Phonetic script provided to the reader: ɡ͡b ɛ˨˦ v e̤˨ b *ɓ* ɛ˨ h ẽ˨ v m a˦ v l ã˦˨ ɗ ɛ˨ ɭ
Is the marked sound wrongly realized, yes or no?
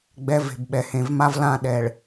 no